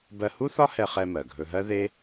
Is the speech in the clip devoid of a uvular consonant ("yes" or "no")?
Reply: no